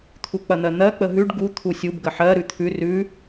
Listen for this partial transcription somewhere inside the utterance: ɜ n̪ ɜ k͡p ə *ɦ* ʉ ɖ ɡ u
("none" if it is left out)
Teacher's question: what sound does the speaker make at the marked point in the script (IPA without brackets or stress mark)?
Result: ɦ